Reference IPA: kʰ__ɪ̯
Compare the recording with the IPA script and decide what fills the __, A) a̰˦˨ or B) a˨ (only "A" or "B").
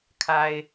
B